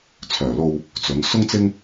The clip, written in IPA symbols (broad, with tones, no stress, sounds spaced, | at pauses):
t͡sʰ œː˨˩ l o˧ w | t͡s ɵ˨˧ n s ʊ˥ ŋ t͡s ɪ˥ ŋ